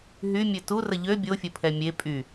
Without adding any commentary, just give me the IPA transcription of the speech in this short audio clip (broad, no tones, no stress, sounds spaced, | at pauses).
ɦ y mʲ ø t u r ə ʎ ø bʲ o fʲ ə pʰ ɛ mʲ e pʼ y